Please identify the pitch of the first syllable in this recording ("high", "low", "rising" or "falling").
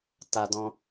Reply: high